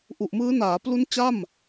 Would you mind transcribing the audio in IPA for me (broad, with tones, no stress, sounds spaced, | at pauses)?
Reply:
ʔ u˨˩ ʔ m ɯː˦˥ n aː˩˦ p l u˦˥ n t͡ɕ a˥˩ m